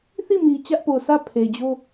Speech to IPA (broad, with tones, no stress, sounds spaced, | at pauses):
θ i˦˨ m i˨ t͡ɕ ä˦ ʔ p o˨ s ä˦˨ pʰ e˨ d͡ʑ o˦